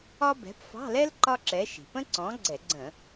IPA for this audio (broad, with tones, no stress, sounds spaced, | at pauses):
ɒ˥ b ɛ̤˨˥ p f ɑ̤˧˥˧ l ɛ˥ l ǃ ɒ˥ ǁ ɛ˨˥ ʃ i̤˩ p ə̃˥ ǀ ɔ̃˨˥ ɡ͡ǀ ɛ˧˩˧ ɡ͡ǀ ə̃˧˩˧